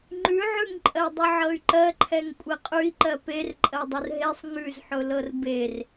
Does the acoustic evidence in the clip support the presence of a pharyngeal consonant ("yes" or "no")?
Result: yes